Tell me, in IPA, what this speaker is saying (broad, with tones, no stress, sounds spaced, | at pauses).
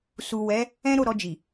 s u˨ w ɛ˨˦ | ɛ̃˦ ɾ o˦˨ ɾ ɔ˧ d͡ʒ i˨